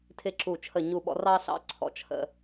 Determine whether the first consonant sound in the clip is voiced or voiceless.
voiceless